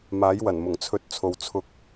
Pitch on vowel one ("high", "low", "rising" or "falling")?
rising